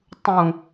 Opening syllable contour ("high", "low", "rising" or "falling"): low